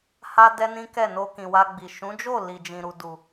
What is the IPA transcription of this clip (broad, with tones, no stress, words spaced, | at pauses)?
ha˦dɛ˦nĩ˦ kɛ˦˨no˧kĩ˨wa˧ ɡ͡bi˨ ʃũ˨˦d͡ʒo˦˨ li˨d͡ʒĩ˨ ɾu˨du˨